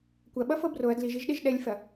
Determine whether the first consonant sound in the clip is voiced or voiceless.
voiceless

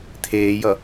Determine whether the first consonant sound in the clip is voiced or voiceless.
voiceless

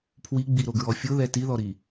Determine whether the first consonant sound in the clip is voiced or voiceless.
voiceless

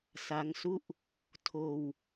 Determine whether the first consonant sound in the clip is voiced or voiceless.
voiceless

